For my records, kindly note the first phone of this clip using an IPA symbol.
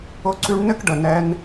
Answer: ʊ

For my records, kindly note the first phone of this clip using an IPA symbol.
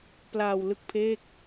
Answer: p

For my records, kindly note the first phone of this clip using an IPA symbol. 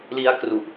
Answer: l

